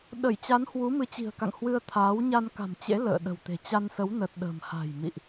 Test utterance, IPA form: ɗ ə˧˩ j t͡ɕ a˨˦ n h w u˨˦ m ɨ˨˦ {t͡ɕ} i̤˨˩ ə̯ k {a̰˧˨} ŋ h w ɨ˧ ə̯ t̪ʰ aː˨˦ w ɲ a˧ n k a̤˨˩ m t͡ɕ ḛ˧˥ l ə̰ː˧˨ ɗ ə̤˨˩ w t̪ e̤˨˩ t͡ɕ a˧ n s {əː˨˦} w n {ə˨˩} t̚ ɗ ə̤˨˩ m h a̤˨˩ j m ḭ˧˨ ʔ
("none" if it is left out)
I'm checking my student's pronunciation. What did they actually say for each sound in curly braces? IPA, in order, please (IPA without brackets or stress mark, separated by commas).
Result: t͡ɕ, a̰˧˨, ə˨˦, ə˨˩